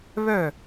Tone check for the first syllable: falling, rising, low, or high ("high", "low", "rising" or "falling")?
falling